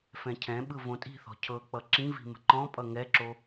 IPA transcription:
fɛ̃cʰɛ̃ɓɯ võtʼi̤θɔ̤ cʰɤk͡pʌ ǁĩvi̤ mə̤ǃɔ̃pʼʌ ŋɛǁo

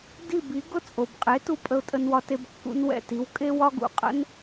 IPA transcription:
di˥˩bi˩˥ ɡʊ˥˩t͡sʼo˩bqʼe˩˥tu˧ pʼə˧ʊ̯tʼə˧nwɒ˧te˧b kːṵ˧nwɛ̰˥˩ti˩˥w kʼe˥wɒ˥ ɡṵ˧qʼə̰˥n

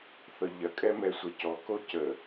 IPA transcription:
θɤʎɐ kʼɛmɛsʷɛcɔ kocə

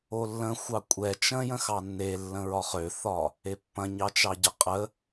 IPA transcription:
olːə̃xʷɑ kʷʼɛ t͡ʃə̃jə̃xɑ nːelːə̃ ɹɒχøθɒ | epːɐ̃ɲɑt͡ʃɑ ɟəqʼə

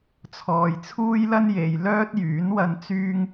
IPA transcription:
t͡sʰɔː˨jt͡sʰuː˥jlɐ˥nje˨j lœː˥t̚jyː˨˥nwɐ˧n t͡syː˥ŋ

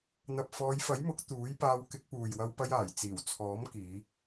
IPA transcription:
n̪ɐ˨p̚fɔː˨˧jfɐ˨˥jmʊ˨˥k̚ t̪uː˨˥jpaː˧w kɪ˧k̚puː˨jwɐ˧wpɐ˧j aː˨˩jt͡siː˨˩wt͡sʰɔː˨˥m kiː˨˧

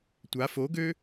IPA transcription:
tʷa foɡø

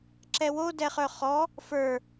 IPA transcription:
ǁɛwo dɛχœχɔ | fə˞

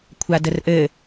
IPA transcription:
kʷʰadərʔɘ

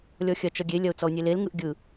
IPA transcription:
lʲɔxʲɐ t͡ʃɔɡʲe lʲɐʊ̯t͡sɔʊ̯nʲelel ŋɯʔɡʲɯ

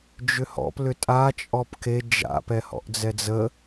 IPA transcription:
d͡ʒʏhɔ̰p lʏtʼa t͡ʃʼɔpke d͡ʒa̰ pɛhɔ̰ʔd͡zɛd͡zə

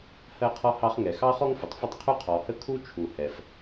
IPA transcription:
hɜ˥qʰɔ˥hɑ˥χ ŋɛ˩xɑ˥χɔ˥ŋ fə˩tˤfə˥tˤ qʰu˥qʰɔ˩hə˥ kʰu˥t͡ʃʰu˩hɛ˩f

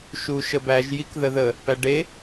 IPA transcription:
ʃuʃəbæʒ jikðəðə | pæɖe

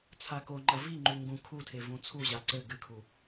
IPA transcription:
t͡sʰakoŋ͡ǃɐ viŋ͡ǃu ŋɡũ kʰutʰe vũt͡sʰuʑa ǀɘ ɡɨkʰu

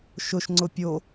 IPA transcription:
ʃʊʃŋ͡ǀʊ pʲo

